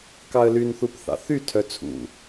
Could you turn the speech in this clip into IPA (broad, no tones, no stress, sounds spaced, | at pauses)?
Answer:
k ɑ ə̯ l y n θ u p θ ɑ̰ θ y tʰ œ t͡sʰ ṵ